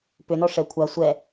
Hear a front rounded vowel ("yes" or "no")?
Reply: yes